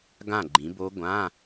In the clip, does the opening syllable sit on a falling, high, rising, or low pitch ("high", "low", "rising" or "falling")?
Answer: falling